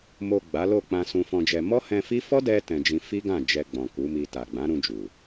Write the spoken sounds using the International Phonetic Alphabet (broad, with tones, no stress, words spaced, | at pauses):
mo˨ ɡ͡ba˨˦lo˦˨ k͡pã˧sũ˧fɔ̃˧d͡ʒɛ˧ mɔ˦hɛ̃˧fi˦ fɔ˦dɛ˧ tɛ̃˧d͡ʒĩ˧ fi˦ɡã˦˨d͡ʒɛ˧ ɡ͡bɔ̃˨ku˨˦mi˧ ta˨ɡ͡bã˨˦ ɾũ˧d͡ʒu˨